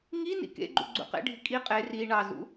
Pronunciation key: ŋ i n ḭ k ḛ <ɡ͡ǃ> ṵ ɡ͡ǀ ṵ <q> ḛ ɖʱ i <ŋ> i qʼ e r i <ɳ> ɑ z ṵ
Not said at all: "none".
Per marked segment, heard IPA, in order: ɡ͡ǃ, q, kʼ, ɳ

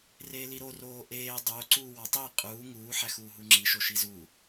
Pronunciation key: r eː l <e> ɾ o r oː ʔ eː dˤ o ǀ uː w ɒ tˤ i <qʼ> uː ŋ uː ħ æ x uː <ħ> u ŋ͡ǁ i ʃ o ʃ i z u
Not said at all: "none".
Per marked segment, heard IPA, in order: i, qʼ, ɦ

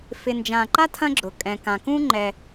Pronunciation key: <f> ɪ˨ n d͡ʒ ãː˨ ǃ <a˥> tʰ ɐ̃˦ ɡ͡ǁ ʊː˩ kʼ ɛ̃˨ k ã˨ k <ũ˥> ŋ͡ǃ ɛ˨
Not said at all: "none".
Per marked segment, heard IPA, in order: f, a˥, ũ˥

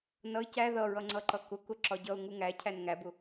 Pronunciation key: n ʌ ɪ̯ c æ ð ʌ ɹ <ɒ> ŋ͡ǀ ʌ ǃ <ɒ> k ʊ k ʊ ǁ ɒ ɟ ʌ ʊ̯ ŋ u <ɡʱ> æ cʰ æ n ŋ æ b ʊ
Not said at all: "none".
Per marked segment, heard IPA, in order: ʌ, ʌ, ŋ

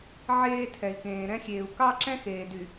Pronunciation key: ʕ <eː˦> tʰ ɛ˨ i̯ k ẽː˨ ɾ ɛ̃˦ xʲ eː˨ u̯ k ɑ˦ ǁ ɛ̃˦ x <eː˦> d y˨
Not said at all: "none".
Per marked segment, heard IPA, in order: eː˦, eː˨

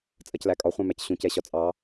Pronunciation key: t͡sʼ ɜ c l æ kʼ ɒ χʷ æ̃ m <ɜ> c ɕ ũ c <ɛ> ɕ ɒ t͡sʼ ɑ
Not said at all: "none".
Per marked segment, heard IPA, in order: æ, ɛ

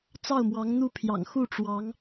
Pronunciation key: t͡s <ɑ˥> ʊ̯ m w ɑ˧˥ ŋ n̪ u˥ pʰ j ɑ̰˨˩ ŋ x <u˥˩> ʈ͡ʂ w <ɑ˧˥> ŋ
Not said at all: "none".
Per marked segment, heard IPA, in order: ɑ˥˩, u˥˩, ɑ˧˥

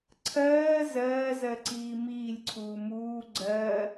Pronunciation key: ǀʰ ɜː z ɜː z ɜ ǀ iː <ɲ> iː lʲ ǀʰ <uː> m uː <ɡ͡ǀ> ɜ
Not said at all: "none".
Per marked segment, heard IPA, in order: m, uː, ɡ͡ǀ

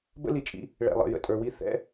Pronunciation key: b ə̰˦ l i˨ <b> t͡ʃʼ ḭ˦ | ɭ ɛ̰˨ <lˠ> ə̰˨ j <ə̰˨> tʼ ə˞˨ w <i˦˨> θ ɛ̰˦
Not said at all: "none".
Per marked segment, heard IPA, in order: none, lˠ, ə̰˨, i˦˨

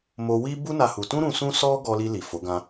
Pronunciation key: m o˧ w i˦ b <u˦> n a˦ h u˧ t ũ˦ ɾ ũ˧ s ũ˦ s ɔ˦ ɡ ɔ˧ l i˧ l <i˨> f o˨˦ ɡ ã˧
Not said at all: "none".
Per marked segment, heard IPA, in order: u˦, i˨

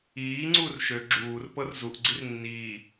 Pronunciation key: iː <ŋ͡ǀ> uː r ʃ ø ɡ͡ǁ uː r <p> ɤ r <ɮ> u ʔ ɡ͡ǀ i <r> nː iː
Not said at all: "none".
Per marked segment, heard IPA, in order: ŋ͡ǀ, p, z, r

